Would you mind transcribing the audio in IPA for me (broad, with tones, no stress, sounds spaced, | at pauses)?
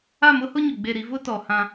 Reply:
a˦˨ m ʊ˦ h ʊ˦ ɲ ʊ˨ ɡ͡b e˦˨ ɾ i˦ v ʊ˦ t ɔ˨ h ã˦